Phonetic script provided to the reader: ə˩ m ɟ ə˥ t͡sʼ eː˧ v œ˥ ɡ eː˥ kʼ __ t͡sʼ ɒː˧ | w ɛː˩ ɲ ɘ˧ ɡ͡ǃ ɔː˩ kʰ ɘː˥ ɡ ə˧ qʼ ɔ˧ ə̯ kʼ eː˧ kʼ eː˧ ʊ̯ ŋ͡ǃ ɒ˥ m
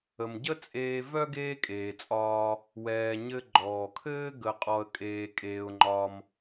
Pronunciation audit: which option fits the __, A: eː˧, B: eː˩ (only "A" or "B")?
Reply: B